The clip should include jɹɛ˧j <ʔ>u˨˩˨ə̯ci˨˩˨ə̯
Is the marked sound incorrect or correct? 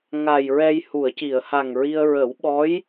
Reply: incorrect